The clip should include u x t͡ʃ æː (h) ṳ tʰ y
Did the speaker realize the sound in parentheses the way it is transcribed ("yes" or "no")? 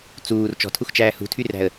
yes